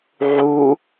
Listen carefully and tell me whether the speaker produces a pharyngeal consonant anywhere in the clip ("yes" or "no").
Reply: yes